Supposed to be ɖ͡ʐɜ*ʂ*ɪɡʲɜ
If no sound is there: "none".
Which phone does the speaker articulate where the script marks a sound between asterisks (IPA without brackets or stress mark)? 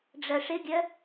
ʂ